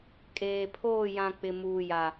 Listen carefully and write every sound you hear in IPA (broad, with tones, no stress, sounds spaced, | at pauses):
kʼ eː˨ pʰ oː˦˨ j ã˨ k͡p ɪ˨ m uː˨ j a˨